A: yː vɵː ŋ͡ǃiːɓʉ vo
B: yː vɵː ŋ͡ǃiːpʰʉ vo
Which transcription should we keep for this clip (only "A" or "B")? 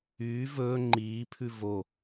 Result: B